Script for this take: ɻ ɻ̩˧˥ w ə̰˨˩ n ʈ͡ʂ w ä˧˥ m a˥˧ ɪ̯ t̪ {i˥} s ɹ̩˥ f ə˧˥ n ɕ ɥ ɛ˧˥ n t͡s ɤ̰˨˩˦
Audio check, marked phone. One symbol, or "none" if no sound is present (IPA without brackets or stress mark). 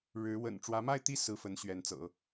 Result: i˥˩